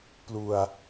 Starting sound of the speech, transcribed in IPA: p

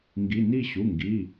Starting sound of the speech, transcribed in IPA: ŋ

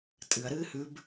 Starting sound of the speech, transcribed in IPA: tʼ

